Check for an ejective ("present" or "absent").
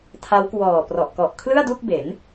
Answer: absent